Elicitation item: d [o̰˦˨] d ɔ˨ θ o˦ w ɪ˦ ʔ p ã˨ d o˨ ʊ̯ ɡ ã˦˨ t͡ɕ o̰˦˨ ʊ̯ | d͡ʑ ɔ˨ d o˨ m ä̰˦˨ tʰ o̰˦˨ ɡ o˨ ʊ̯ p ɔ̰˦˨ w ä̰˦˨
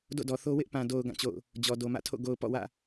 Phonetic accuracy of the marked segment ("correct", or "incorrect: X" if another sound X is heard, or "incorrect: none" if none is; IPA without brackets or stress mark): correct